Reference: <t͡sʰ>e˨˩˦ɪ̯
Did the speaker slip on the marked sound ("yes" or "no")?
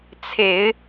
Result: no